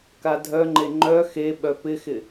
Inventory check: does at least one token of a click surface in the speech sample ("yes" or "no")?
yes